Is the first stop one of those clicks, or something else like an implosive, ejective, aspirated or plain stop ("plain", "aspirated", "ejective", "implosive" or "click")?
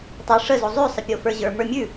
plain